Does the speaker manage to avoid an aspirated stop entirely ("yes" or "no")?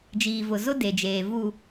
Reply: yes